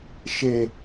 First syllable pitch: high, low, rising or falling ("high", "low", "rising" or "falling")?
low